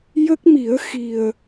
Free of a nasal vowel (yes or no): yes